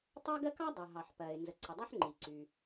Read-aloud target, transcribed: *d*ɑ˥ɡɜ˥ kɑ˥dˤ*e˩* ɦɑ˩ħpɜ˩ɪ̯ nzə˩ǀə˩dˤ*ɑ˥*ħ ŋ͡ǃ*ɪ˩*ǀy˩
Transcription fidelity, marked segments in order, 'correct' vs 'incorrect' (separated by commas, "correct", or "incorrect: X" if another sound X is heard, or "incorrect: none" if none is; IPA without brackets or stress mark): incorrect: tˤ, incorrect: ɘ˩, correct, incorrect: i˩